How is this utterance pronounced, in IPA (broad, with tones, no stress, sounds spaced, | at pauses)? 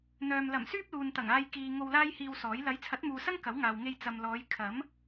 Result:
n̪ œː˨ m l ɐ˨˩ m s yː˥ p̚ l uː˨ n t̪ ɐ˨˩ ŋ aː˧ j k iː˨ ŋ o˧ w l aː˥ j h iː˧ w s ɔː˨˥ j l ɐ˨˥ j t͡sʰ ɐ˨˥ t̚ m uː˨ s ɐ˥ ŋ k ɐ˨˥ w ŋ aː˨ w ŋ e˧ j t͡s ɐ˨ m l ɔː˨˧ j kʰ ɐ˨˥ m